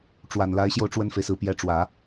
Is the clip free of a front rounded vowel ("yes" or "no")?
yes